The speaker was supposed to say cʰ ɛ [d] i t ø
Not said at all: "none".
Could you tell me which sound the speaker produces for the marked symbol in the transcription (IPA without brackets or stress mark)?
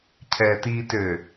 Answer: t